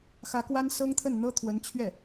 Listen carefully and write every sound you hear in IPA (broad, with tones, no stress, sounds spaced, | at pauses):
x ä˧˥ k w a˥ n s ɤ˥ ŋ t̪ʰ ə˥˩ n n̪ ɤ˥ t̪ʰ w ə˧˥ n t͡ɕʰ ɥ ɛ˥˩